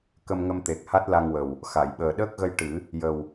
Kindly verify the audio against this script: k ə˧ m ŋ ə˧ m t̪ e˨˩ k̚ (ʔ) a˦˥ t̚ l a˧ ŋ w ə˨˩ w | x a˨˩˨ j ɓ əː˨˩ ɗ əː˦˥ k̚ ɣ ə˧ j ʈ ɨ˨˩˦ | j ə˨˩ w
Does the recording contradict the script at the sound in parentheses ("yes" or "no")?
yes